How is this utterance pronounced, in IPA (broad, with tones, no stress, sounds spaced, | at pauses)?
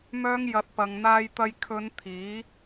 m œː˧ ŋ j ɐ˨˥ t̚ p ɐ˧ ŋ n̪ aː˥ j t̪ ɐ˥ j kʰ ɵ˨˧ n t̪ʰ iː˨˥